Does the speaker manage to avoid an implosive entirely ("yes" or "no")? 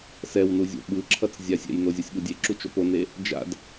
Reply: no